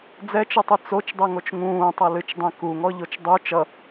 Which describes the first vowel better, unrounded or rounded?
unrounded